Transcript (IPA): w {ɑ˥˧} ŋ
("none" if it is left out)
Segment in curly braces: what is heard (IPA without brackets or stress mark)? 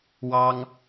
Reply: ɑ˥